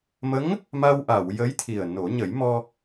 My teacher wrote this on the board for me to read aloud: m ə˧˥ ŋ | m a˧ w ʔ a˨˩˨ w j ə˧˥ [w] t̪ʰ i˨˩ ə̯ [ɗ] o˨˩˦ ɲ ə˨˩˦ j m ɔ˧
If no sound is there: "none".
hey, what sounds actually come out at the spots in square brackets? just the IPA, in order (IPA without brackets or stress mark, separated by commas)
j, n